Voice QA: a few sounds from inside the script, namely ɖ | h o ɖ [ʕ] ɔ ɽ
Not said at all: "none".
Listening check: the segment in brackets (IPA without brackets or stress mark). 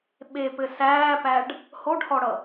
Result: h